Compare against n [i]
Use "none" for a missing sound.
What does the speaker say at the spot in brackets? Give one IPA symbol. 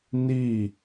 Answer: i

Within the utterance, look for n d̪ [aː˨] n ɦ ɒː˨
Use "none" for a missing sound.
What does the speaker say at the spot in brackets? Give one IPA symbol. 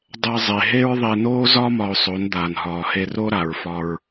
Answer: aː˨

